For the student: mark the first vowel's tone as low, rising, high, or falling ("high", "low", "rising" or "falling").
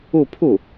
falling